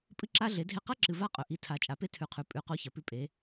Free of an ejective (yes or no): no